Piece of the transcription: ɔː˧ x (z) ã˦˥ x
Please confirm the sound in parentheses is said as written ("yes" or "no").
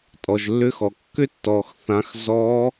no